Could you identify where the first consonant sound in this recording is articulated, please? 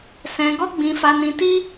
alveolar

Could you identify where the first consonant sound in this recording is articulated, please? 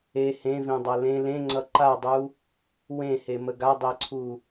glottal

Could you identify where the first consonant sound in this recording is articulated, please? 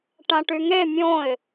retroflex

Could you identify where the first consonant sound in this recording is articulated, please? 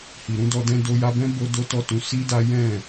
glottal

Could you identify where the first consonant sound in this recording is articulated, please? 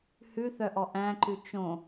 glottal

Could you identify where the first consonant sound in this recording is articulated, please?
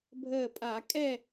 labial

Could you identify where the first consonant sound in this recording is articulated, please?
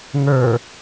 velar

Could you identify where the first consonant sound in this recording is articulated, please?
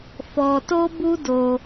labial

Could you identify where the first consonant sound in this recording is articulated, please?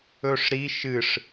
retroflex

